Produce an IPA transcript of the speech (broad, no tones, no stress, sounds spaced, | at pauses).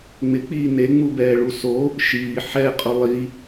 ŋ͡m ɪ k͡p iː n e ŋ͡m u b ɛː ɭ u s o | ʃ iː ħ ɛ qʼ ʊ lˠ i